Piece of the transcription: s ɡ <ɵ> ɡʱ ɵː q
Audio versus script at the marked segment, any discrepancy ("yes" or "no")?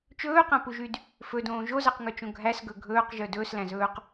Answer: no